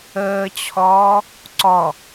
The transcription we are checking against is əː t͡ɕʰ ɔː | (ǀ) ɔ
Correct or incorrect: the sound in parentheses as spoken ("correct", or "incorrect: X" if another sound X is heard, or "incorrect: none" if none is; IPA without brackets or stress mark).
correct